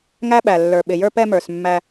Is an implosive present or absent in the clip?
present